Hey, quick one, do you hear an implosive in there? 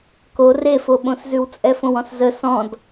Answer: yes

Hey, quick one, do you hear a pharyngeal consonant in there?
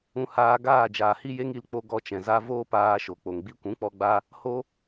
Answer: no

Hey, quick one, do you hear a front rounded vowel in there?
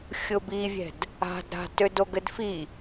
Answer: yes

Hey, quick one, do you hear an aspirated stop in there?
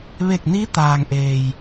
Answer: no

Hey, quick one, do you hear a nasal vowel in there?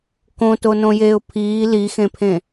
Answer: yes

